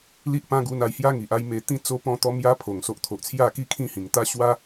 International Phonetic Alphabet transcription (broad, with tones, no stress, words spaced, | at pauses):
li˦ʔpã˦ɡu˧na˧j hja˦ŋi˨ʔ a˥˧jme˧ t̪ĩ˥˧ t͡so˦pɔ̃˥˧t̪ɔ˦ mja˦pʰo˨˩ŋ so˨ʔt̪ʰo˨ʔ t͡sʰja˥˧ki˥˧kʰĩ˥˧hĩ˨˩ŋ t̪a˦ɕwa˦